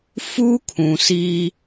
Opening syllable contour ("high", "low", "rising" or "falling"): high